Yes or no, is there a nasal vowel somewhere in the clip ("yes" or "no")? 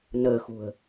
no